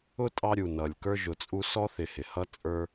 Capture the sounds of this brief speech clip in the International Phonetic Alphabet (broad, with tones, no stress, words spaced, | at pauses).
ʊ˦ tʼɑ˦ɾʲu˩ nʌ˩lʲkə˞˥ʒʊ˨t͡sʼu˥ sɔ˥θɪ˨hɪ˩hʌ˥ t͡sʼə˞˦